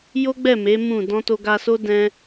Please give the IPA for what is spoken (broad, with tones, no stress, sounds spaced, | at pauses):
j o˦ ɡ͡b ɛ˦˨ m e˨˦ m ũ˦˨ d ɔ̃˧ t o˧ ɡ a˧ s o˦ d ɛ̃˦